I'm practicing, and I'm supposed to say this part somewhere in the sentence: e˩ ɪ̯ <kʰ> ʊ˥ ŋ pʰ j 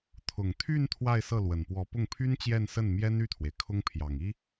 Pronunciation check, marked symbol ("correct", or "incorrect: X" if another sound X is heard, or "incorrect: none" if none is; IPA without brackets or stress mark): correct